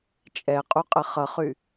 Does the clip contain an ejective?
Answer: yes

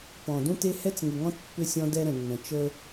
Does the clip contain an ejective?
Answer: no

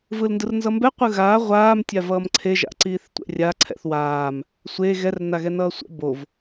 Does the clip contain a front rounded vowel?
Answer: no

